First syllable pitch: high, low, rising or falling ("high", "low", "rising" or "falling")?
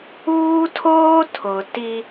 high